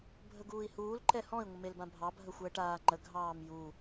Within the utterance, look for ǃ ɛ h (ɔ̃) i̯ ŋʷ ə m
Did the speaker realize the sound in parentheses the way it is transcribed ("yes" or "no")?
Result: yes